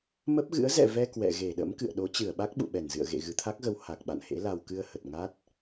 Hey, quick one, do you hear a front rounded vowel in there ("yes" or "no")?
no